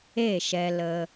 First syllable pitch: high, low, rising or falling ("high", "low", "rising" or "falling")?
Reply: falling